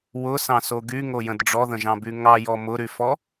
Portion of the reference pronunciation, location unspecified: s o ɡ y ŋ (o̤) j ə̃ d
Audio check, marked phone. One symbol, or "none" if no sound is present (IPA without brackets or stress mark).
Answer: o